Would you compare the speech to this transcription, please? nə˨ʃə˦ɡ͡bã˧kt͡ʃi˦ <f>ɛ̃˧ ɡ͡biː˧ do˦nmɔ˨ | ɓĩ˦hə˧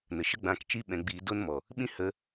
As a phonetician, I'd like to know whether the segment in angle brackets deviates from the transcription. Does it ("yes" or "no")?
yes